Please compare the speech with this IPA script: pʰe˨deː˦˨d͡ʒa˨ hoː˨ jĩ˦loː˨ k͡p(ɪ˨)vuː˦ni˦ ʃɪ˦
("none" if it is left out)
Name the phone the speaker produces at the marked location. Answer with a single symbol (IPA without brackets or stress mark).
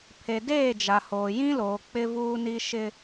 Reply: ɪ˦